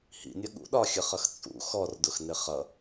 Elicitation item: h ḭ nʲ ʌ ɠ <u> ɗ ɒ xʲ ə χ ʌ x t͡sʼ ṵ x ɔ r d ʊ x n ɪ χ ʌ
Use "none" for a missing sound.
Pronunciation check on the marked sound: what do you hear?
ṵ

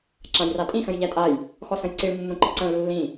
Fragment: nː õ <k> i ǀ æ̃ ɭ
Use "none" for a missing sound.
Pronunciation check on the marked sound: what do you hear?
ǃ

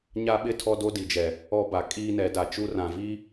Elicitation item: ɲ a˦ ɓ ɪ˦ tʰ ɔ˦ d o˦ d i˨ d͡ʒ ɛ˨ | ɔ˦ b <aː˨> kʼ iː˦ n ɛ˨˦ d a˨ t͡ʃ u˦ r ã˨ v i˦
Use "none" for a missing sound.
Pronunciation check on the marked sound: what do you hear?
a˨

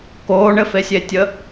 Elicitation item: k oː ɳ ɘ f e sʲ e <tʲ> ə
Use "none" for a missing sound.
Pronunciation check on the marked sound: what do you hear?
tʲ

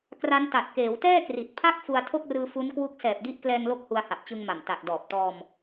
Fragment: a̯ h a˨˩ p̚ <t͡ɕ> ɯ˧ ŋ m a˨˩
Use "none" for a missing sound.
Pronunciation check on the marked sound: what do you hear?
t͡ɕ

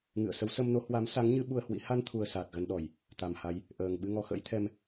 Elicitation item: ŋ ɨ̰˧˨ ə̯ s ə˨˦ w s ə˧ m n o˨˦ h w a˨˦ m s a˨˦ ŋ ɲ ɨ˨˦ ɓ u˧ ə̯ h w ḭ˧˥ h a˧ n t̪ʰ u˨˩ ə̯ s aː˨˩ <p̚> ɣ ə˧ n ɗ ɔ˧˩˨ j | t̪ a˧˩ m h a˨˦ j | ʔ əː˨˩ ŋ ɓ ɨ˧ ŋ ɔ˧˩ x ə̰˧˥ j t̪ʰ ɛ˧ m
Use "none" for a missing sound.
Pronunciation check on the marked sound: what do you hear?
t̚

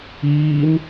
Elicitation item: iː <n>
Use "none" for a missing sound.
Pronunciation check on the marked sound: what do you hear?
n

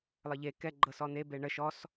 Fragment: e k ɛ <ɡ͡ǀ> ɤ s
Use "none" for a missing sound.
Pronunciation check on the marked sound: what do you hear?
ɡ͡ǃ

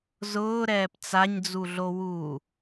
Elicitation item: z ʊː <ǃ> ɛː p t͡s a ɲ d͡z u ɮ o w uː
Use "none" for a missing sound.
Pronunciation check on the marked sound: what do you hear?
ɾ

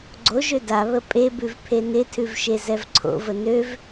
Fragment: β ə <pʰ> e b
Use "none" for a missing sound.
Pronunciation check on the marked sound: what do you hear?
pʼ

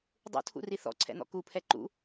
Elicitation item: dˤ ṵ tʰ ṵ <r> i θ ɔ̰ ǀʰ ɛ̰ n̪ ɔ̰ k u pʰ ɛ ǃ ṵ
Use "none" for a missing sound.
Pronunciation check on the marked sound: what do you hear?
r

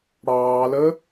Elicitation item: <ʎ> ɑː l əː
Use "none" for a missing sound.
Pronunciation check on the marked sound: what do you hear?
ɽ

